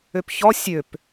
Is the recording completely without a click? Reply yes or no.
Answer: yes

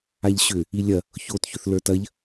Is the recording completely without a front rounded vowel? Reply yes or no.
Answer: no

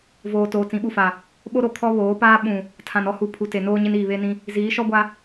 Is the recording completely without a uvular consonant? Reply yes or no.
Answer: yes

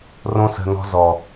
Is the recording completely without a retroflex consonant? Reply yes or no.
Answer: yes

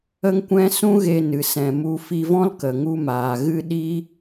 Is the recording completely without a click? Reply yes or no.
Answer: yes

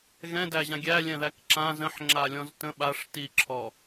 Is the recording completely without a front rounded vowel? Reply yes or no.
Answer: yes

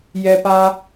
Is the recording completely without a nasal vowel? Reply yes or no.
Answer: yes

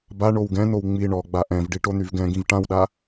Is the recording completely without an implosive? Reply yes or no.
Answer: no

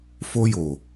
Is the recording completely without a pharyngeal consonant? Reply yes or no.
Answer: yes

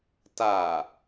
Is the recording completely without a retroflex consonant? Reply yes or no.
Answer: yes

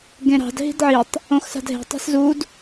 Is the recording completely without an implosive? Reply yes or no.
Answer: yes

